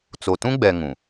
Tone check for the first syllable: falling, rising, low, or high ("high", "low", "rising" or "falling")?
low